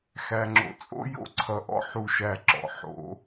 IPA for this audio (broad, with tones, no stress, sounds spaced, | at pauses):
x æ˨ ŋ͡ǁ o̰˨ t͡sʼ o̰˦ j o̰˦ ǀʰ ʌ˨ ʔ ɔ̰˦ ħ u˦ ʃ æ˦˨ ǁ ɔ̰˨ ħ o̰˨˦